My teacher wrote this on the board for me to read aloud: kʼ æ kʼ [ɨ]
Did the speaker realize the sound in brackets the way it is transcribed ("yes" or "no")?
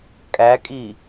no